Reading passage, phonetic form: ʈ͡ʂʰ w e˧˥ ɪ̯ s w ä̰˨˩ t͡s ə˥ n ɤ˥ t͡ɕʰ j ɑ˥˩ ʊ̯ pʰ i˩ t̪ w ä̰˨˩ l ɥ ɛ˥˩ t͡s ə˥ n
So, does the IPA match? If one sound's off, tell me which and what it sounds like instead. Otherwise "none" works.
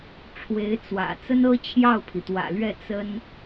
s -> t͡s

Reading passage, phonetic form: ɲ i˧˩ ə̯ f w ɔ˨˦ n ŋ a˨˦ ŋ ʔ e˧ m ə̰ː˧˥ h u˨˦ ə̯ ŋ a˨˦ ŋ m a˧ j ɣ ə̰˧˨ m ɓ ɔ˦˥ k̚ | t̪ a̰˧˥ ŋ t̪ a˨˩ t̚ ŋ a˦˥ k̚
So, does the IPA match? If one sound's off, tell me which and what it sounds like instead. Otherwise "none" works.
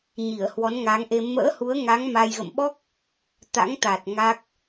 f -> h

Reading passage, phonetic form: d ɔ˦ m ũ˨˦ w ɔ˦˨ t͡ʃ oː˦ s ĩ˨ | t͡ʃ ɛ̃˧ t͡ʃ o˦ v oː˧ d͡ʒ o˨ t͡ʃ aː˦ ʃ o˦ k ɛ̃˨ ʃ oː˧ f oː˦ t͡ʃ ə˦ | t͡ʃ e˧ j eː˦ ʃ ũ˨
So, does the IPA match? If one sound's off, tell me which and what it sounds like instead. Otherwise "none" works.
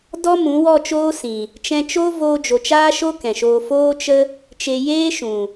none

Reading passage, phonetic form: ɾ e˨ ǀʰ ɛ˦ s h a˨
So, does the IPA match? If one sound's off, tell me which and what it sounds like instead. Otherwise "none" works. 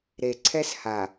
none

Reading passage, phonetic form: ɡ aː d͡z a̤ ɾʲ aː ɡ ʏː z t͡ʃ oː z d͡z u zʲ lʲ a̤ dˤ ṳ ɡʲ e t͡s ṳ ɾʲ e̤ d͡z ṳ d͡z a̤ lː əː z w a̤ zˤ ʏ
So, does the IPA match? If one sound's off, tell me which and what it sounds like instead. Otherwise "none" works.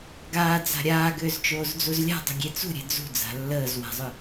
zʲ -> z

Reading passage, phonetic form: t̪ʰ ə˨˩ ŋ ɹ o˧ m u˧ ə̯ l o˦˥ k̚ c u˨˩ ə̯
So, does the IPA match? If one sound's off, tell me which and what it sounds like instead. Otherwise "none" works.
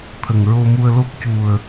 none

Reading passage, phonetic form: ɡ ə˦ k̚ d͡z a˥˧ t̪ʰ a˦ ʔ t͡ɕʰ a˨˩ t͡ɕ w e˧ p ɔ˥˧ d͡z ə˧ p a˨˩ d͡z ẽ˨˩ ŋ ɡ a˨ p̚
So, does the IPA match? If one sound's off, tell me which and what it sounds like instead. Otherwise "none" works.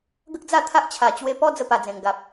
none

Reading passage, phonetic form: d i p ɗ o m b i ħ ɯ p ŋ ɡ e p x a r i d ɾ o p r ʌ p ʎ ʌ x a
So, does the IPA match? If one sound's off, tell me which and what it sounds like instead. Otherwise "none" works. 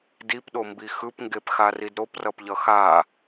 ħ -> x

